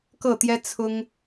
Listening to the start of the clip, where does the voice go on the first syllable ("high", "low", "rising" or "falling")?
falling